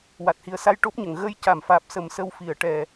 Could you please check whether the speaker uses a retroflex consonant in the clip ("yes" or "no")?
yes